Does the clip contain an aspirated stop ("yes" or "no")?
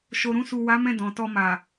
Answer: no